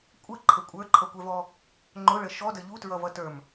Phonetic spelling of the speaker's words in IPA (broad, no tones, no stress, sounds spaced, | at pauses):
kʷʼ ə ǃʰ ə kʷʼ ə˞ ǃʰ ʌ kʷ ɛ v ɔ | ŋ͡ǃ ʊ ɭ ə ʃ ɔ d ə ʎ u t ɹ ʌ v ʌ t ə˞ m